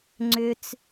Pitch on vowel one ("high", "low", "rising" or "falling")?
low